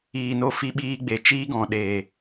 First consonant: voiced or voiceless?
voiced